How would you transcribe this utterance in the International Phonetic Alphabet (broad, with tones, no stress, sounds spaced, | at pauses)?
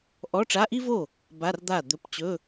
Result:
ʔ ɔ˧˥˧ ʈ͡ʂ a˧˥˧ ʔ i˥ v o˥˩ | b a˧˥˧ r d̪ a˥˩ d̪ ɵ˧˥˧ p t͡ɕ ɵ˧˥˧